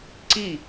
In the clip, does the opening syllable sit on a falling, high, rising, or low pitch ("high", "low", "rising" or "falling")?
falling